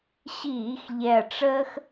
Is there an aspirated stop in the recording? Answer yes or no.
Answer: no